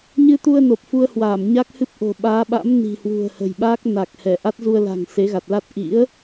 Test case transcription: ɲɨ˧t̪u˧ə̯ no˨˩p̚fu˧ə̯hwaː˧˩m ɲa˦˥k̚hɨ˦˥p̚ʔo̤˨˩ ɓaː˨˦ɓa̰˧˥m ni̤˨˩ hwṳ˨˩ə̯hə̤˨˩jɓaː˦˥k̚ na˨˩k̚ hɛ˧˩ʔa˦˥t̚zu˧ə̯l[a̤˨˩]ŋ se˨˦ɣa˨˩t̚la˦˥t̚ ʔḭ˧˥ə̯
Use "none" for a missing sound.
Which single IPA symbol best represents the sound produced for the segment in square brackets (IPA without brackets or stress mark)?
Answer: a̤˨˩